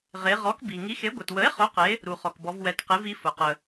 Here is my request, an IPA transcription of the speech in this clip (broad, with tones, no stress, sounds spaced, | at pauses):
ʁ e˩˧ ʁ ɔ˩˥ k b i˩ ŋ i˩˥ x e˩˥ ɡʷ ɛ˩ t w ə˩˥ e̯ χ ʊ˩˥ q e˩˥ | ɾ u˩ χ ɔ˩ k b ɔ˩˧ v w ɛ˩˧ t q e˩˥ v i˩˥ f ʊ˩ q ə˩